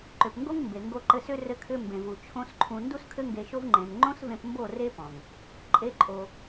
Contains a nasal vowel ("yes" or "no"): yes